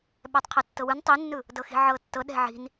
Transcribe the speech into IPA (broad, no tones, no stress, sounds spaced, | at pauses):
ɓ ɛ tˤ qʰ ɤ tː ɤ w ɯ n tˤ i nː ɯ | d ɤ x i̤ ʕ ɤ tː ɤ ɗ ɛ̤ ʕ i̤ n